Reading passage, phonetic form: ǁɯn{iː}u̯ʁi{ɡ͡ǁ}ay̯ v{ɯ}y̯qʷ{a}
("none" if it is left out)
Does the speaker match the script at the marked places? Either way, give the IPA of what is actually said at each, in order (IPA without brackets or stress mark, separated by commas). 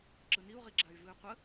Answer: i, ɡ͡ǁ, ɯ, ə